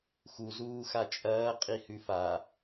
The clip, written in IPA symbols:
xu zuːxat͡ʃʼɐː qʼihʉfa

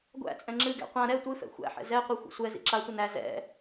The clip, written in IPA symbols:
ɡʷæ̰t͡sʼɛ̃ ŋ͡ǁɨɡæ̰ qʷã ɾɛ tʷɨfɛ̰ xʷæ̰ħɛ̰ zɛqʷi xʷḭsʷɛzḭ ǁatʷə næ zɛ̰

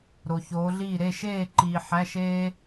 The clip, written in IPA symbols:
ɾo˨çoː˨˦ɮiː˥˨ ɾe˥˨ʃeː˥˨ǃiː˨ ħæ˧˥˧ʃeː˥

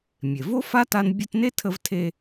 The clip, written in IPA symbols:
mʲe˩vo˥fa˥ta˦n bʲə˦tne˥tʰə˦v tʰe˦

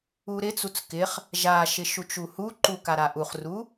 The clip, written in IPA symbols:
uɾɪt͡sut͡s kɪχ | ʒaʃɪ ʃut͡ʃuhuǃu kaɾaʔuχru

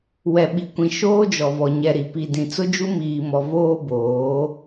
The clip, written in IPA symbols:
wɛ˨ɓi˨kʷĩ˨ ʃoː˦d͡ʒɔ˨vɔ˨ ɲɛ˨ɾi˨ pi˨dĩ˨ t͡sʊ˦d͡ʒu˦miː˨mɔ˨ voː˦boː˨˦

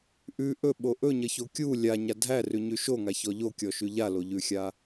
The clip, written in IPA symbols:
ʔʉ ʔɵɓo ʔɵɲʌço kʲu lʲaɲa dʱærʉɲʉ ʃoŋaçɔ ʎokʲɔʃʉ ʎaloʎʉxʲa

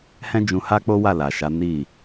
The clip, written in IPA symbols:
hɛ̃˦ d͡ʒũ˧ha˦k͡po˦wa˦˨ la˨ʃa˨˦ ni˦˨

